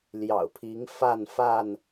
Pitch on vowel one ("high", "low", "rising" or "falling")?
low